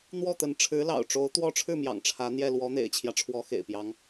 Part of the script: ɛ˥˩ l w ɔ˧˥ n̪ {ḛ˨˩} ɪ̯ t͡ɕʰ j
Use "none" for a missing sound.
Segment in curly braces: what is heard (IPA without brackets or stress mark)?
ḛ˨˩